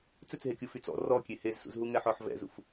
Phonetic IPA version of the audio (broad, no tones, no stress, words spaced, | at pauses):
t͡sɵt͡sɦekʲu fyt͡sɔ̰ rɔkʲe hezsṵzɦuŋɛ ħɔħvɛ̰zṵf